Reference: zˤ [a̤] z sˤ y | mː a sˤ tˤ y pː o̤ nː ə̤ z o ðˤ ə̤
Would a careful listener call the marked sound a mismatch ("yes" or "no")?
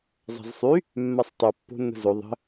no